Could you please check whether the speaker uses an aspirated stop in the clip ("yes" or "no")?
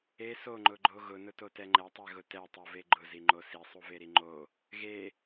no